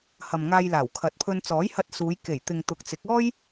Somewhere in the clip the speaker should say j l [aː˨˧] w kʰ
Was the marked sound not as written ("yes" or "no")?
yes